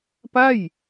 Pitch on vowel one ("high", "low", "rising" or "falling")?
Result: falling